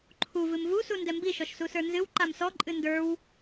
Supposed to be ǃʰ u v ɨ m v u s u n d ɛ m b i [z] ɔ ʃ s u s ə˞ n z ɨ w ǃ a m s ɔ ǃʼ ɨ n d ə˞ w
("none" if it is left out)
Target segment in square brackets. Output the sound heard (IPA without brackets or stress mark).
ʃ